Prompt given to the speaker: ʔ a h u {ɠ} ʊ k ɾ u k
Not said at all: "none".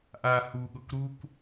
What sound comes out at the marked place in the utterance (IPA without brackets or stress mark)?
ɠ